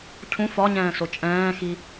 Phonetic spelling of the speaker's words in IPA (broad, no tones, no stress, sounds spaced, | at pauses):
cʰ ũ f ɒ ɲ ɛ̃ː s o t͡ʃʼ ɛ̃ː x i